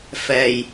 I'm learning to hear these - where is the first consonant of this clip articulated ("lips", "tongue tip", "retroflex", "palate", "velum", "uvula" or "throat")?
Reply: lips